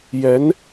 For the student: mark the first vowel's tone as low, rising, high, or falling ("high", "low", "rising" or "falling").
rising